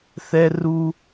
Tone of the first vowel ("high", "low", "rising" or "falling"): high